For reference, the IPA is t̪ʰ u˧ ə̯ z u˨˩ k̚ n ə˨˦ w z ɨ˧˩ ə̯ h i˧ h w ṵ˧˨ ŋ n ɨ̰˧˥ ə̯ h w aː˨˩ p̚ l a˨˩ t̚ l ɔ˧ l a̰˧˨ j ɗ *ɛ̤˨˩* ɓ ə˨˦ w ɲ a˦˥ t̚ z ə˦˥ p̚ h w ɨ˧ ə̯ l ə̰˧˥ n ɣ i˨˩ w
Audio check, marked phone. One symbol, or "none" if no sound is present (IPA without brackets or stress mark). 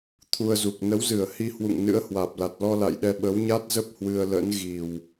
ɛ˧